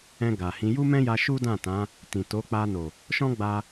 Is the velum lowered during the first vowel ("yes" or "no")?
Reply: yes